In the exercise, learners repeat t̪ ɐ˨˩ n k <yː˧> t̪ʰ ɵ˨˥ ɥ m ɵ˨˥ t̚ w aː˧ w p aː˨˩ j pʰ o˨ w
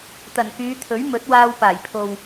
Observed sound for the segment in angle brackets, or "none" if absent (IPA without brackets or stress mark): yː˨˧